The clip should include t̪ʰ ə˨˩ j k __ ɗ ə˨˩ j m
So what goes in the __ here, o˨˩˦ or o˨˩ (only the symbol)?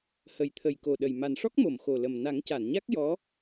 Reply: o˨˩